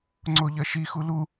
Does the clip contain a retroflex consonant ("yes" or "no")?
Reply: no